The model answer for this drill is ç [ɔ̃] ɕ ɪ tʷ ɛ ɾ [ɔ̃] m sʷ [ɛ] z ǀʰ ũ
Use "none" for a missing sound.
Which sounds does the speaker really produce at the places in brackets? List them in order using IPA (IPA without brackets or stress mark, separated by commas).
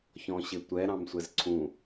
ɔ̃, ɑ̃, ɛ